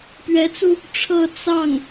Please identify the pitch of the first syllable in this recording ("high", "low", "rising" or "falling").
rising